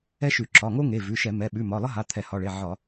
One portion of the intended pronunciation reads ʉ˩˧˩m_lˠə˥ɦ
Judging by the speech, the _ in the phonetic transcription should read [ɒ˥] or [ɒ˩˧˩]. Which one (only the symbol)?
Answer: ɒ˩˧˩